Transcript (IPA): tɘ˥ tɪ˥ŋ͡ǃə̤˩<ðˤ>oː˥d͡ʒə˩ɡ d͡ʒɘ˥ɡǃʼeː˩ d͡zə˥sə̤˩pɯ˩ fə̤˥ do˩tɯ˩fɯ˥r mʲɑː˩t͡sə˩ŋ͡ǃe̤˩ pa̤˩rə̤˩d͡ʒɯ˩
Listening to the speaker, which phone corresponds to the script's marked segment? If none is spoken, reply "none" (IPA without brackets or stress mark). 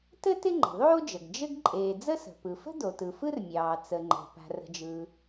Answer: ðˤ